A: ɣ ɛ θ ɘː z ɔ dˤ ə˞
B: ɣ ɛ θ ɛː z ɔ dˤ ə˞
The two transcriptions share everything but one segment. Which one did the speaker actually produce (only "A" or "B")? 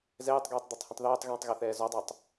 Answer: B